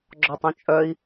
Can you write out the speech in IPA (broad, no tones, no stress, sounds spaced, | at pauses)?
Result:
ɡ͡ǁ ɔ tˤ ũ t͡ʃʼ œ i̯